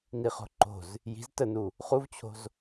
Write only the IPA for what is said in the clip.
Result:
n i χ o̤ ǃ o̤ z | j i̤ z t ə n u | χ u v t͡ɕʰ o̤ z

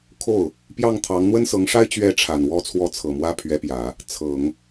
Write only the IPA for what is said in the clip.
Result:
kʰ o˥˩ ʊ̯ | p j ɑ˥˩ ŋ t̪ʰ ɑ˧˥ ŋ n̪ w ə˥ n s ɤ˧˥ ŋ ʂ a˥ ɪ̯ t͡ɕ ɥ ɛ˧˥ ʈ͡ʂʰ a˨˩ n w ɔ˥˧ t͡sʰ w ɔ˥˩ t͡sʰ ɤ˨˩ m w ä˥ pʰ ɥ ɛ˧˥ p j ä˨˩˦ | t͡sʰ ɤ˨˩˦ ŋ

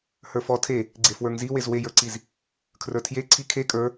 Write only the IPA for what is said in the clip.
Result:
h ə˞ f ɔ tʰ e | ɡ͡ǀ e f w ə˞ ŋ z i w e z w e j ə˞ ǀ i z | kʰ r ə˞ tʰ j e ǀʰ i kʰ e kʼ ə˞

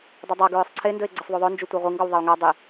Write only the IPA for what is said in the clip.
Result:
dˤ ɵ dˤ a ɡ ɹ ʏ sˤ ǀʰ e n d ɵ e̯ ɡ͡ǀ ɘ sˤ ðˤ u ðˤ ɵ n d͡ʒ u tʷ ɜ ʁʷ i ŋ ɡ ɔ w ðˤ e o̯ ŋ a dˤ e

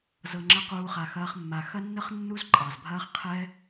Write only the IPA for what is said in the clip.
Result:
z ɤ˧ ŋ͡ǁ ɐ˦ q uː˦ χ a˧ x ɐː˦ χ mː a˧ x ɐ˦ nː ə˦ χ nː u˦ z ǃʼ ɑ˨ z bʱ ɐː˦ χ qʰ ɛ˦

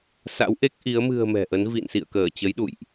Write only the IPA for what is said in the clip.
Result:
s a̰˧˥ w ʔ e˦˥ k̚ ʔ i˨˦ ə̯ m ɨ̤˨˩ ə̯ m ɛ̤˨˩ ʔ ə˨˦ n v ḭ˧˨ n s ḭ˧˨ ə̯ k əː˧˩ t͡ɕ ə˨˦ j ɗ ṵ˧˨ j ʔ

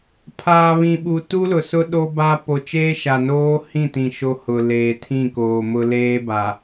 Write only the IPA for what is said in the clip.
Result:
pʰ aː˨ β ĩ˨ ɓ u˨ t u˦ l ʊ˨ s ʊ˦ ɗ o˦ b a˦ p o˨ t͡ʃ eː˦ ʃ a˨ n oː˦ h ĩ˦˨ t ĩ˨ ʃ o˦ h ʊ˨ l eː˨ tʰ ĩ˦˨ k oː˨ m ʊ˦ l eː˦ b a˨

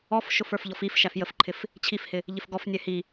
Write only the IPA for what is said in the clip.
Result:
ɔ f ʃ ʊ f ə˞ f ʎ ɔ f i f ʃ æ f j ə f ǃʰ ɪ f | t͡ɕʰ i f h ɪ | ʎ ɪ f ɡ ɔ f nʲ ɛ h i

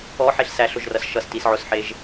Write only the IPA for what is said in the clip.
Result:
ɔ ħ e ɬ s æ ɬ ʊ ʒ r ʌ s ʃ ʌ s t i s ʕ ʊ s ħ e ʒ

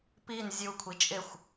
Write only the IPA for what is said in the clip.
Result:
p i n zʲ u kʷʰ i t͡ʃʼ ɪ xʷ

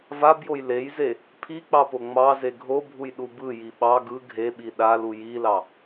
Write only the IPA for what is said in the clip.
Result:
v a b j o j l e j z e | pʰ i k͡p ɑ p o ŋ͡m ɑ z e ɡʱ o bʱ u j ɗ u b ɯ j i ɓ ɑ ɡ ɯ ɡʱ e ɓ i ɗ a l u j i l ɑ

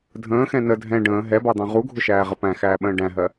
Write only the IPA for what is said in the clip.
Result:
dʱ ə̃ː x ɛ̃ n ə dʱ ɛ̃ ɖ ə̃ː ɦ ɛ b ɑ d̪ ɑ̃ ʁ u ɡʱ ʊ ʃ æː ʁ ə p æ̃ x æː ɓ ə̃ː ɖ æ̃ ɦ ɜ

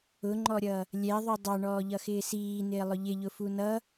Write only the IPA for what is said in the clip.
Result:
ʊ ŋ͡ǃ ɔ ɾʲ ʌ | lʲ ɛ ðˤ u dˤ ɑ ɳ ɔː ʎ ʌ x ɪː s iː n ɪː lˠ ʊ ʎ ɪ ʎ ʊ f u n ʌ

